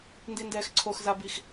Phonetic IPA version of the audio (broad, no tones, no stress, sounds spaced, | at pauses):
n d i n d ɛː x ǀʰ o x z a b i x